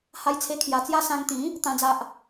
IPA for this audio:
h a˦ j t͡sʰ e˦ kʰ j a˧ t͡s j a˥˧ s ã˧ ŋ t̪ ĩ˨˦ | t̪ ã˦ d͡z a˦ ʔ

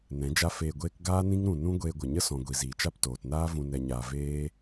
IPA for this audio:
n ɛ̃˨˦ d͡ʒ a˦ f eː˧ ɡʷ eː˦ k ɡ aː˦ n ĩ˦ ŋ ɾ ũ˧ n ũ˦ ɡʷ eː˧ ɡʷ ə˨ ɲ ə˦ s ɔ̃˨ ɡʷ i˨ z iː˨ t͡ʃ a˦ p t oː˨ t n aː˦ v ũ˧ n ɛ˧ ɲ aː˧ v eː˦

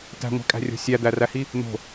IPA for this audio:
t æ̤ ŋʷ æ̤ kʼ æ̤ rʲ o̤ sʲ æ d̪ æ r æ h i | n̪ o̤

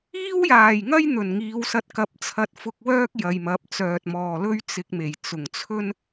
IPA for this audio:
iː˥ w j aː˨˩ j ŋ ɐ˥ j n̪ ɵ˨˩ n ŋ iː˨˧ w s ɐ˧ t̚ k ɐ˨˥ p̚ t͡sʰ ɐ˧ t̚ f ʊ˧ k̚ w œː˥ k̚ j ɐ˨ j m ɐ˨˥ p̚ t͡s œː˨ t̚ m ɔː˨ l ɵ˥ ɥ t͡s ɪ˧ k̚ m e˨˩ j t͡s ʊ˨˩ ŋ t͡sʰ ɵ˥ n

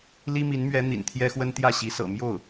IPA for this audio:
l i˥ m i˧˥ n m ɥ ɛ˧˥ n̪ ḭ˨˩ n t̪ʰ j ɛ˥ x w ə˥ n t̪ j ä˥˩ ɕ i˧˥ s ɤ̰˨˩ m j o˥˩ ʊ̯

